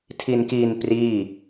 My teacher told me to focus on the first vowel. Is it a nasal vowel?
no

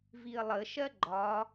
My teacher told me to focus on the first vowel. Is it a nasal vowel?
no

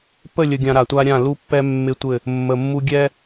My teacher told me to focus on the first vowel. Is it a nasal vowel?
no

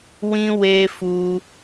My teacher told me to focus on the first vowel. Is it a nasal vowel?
yes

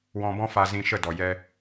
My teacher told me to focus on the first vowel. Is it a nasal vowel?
yes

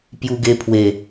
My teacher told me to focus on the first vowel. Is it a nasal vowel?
no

